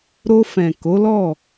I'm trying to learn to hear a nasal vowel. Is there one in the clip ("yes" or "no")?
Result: yes